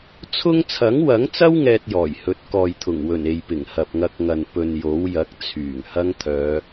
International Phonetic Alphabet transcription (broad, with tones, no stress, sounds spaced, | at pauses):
t͡sʰ ʊ˥ ŋ t͡sʰ ɐ˨˥ ŋ w ɐ˨˥ ŋ t͡s ɐ˥ w ŋ ɛː˥ t̚ j ɔː˨˩ j h ɵ˨˥ t̚ k ɔː˨ j t̪ʰ ʊ˨˩ ŋ w ɵ˨˩ n e˨ j p ɪ˨˩ ŋ h ɐ˨ p̚ ŋ ɐ˧ k̚ ŋ ɐ˨ n p ɵ˨ n j o˨˥ w j ɐ˨˥ k̚ t͡sʰ yː˨˩ ŋ h ɐ˥ ŋ t̪ʰ œː˨˧